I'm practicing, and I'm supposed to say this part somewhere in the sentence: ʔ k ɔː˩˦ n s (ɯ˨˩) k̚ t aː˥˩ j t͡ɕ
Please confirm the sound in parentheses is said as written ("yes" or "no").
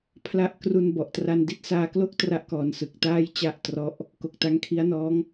yes